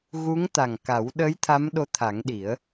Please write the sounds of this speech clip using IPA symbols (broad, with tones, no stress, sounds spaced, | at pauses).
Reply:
ɣ u˧˥ ŋ t̪ a˨˩ ŋ k a˨˩˦ w ɗ ə˧˥ j t̪ʰ a˧˥ m ɗ o˧˥ t̪ʰ a˨˩˦ ŋ ɗ i˨˩˦ ə̯